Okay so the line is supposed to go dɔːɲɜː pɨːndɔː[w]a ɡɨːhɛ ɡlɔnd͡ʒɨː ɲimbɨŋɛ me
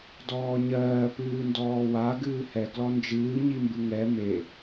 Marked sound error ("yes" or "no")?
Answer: no